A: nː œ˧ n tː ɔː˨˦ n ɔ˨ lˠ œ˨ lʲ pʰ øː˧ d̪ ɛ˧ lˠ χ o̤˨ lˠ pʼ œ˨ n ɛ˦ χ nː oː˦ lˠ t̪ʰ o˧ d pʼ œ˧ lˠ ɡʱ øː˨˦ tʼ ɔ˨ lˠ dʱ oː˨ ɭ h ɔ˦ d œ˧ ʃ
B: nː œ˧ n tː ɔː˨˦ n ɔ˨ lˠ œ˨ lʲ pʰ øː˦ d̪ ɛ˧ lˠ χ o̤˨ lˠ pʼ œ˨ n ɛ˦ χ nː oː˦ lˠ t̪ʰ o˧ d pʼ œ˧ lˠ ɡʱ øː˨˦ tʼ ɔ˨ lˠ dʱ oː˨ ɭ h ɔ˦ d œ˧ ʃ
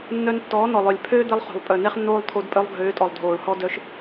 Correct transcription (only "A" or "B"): B